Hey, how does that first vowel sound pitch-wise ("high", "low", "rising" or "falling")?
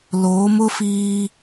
rising